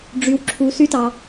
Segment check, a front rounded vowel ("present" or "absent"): present